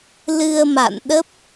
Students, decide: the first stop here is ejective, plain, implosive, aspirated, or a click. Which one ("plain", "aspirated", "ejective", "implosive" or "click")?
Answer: implosive